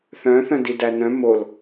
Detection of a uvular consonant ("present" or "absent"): absent